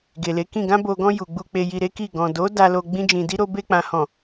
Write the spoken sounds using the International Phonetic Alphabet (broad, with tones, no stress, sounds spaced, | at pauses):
ɡ e˨ l e˨˦ k ĩ˦˨ ɡ ã˧ b o˨ ɡ ɔ̃˧ j u˨ ɡ͡b u˧ k͡p e˧ j i˧ ɾ e˦ k i˦˨ ɡ ɔ̃˨ d o˨˦ d a˧ l o˧ ɡ͡b ĩ˦ d͡ʒ ĩ˧ d i˦ ɾ o˦ b e˧ k͡p ã˨ h ɔ̃˨